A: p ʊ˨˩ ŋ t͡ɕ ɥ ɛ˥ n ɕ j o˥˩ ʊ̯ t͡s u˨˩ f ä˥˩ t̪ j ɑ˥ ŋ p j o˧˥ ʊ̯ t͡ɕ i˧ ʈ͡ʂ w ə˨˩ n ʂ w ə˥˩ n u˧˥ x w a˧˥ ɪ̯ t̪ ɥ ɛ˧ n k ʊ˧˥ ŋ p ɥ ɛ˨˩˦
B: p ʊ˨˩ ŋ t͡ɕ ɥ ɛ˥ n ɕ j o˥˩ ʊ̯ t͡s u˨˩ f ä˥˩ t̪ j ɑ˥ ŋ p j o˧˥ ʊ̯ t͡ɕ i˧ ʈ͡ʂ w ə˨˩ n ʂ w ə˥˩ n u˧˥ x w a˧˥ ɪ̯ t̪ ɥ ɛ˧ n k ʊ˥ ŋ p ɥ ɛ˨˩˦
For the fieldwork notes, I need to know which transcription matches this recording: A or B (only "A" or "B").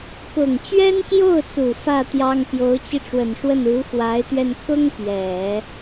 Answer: B